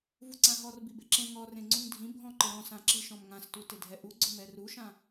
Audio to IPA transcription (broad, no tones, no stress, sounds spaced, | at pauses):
v u ǀ ã ɦ ɔ r b i b e ǁ ẽ ŋ ɔ r ẽ ŋ͡ǀ ũ ŋ dʱ ĩ bʱ ɔ̃ ǃ ɪ ɾ ɔ̃ s ã ǁ i ʃ ɔ̃ m ŋ ã s t u t ɪ dʱ ɛ ʔ u ɡ͡ǀ ʊ m ɛ r u ʃ ã